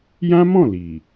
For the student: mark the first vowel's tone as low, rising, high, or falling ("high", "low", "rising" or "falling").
high